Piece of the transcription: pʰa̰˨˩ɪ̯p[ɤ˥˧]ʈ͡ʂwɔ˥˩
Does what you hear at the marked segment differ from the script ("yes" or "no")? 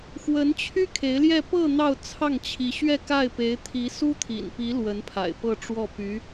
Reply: no